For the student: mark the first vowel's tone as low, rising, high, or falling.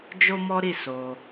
high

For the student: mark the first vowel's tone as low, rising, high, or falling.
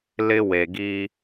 high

